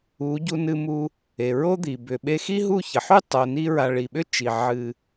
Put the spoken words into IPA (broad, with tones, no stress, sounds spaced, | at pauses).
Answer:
u˨˦ ɟ u˧ n ɨ˧ m u˧ | e˨ ɹ o˦ d̪ i˨ b ʏ˨ ɓ e˧ x i˦ ɦ u˦˨ ç ə˨ ħ y˦ tˤ o˨ n i˧ ɹ a˨ ɭ i˨ ɓ ʏ˦ t͡ʃ i˨ ʕ ɨ˨